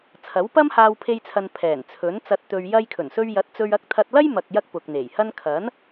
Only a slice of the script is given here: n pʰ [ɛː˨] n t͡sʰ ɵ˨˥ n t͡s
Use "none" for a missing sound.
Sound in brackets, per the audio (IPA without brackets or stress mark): ɛː˨˩